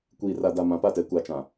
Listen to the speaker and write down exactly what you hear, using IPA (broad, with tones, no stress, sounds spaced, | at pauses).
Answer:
kʷ iː˨ r a˨ d a˨ m ã˨ p a˦˨ t ɛ˨˦ kʷ a˨ t͡ʃ ã˨